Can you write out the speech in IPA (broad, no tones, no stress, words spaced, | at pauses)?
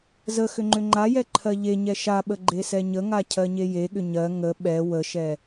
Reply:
zə xʏŋ͡ǃʏŋ͡ǃajɛ ǃʰɜʎeɲɛ ʃaɓə ɡ͡ǃesɛɲəŋa cʰɜɲejeɠʏ ɲɜ ŋə ɓɛ wəʃɛ